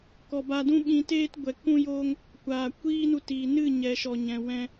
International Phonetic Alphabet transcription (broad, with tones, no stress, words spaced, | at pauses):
kɔ˨ ba˧dũ˦ɓĩ˧teː˦t ɡʷɛ˨ kũ˦joː˦ŋ | kʷaː˨ kʷiː˦nu˧tiː˨ nɨ˦˨ɲɛ˨ʃɔ˨ɲɛ̃˨ wɛ̃˧